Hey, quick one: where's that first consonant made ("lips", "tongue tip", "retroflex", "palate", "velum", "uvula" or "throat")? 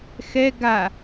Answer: velum